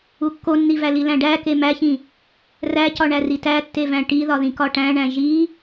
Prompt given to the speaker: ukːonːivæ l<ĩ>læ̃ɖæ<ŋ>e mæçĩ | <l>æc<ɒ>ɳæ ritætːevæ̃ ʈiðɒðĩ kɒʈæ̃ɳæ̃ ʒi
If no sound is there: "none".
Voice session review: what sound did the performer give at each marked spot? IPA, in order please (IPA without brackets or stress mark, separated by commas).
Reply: i, k, r, ɒ